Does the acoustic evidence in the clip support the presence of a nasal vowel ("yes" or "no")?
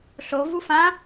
yes